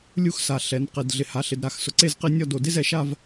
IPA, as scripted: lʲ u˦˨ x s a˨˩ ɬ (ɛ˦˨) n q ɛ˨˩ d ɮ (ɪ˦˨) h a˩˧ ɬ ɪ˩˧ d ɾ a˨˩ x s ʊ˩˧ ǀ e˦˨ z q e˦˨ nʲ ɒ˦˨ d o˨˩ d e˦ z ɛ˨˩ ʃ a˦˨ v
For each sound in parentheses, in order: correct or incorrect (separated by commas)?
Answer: incorrect, incorrect